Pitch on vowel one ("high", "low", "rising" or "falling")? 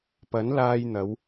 rising